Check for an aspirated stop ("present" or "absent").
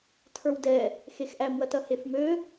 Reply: present